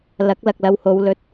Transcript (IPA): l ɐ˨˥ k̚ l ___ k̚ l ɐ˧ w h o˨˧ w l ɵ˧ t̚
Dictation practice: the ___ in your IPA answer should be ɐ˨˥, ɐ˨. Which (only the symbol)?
ɐ˨